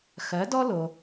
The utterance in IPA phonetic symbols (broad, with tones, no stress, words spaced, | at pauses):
xɜ˩˥dɔ˥lo˩